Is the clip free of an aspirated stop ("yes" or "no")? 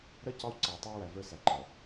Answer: yes